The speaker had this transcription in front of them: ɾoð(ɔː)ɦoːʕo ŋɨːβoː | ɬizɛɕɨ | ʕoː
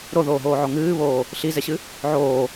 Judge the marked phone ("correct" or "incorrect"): incorrect